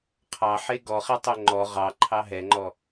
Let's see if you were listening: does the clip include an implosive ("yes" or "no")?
no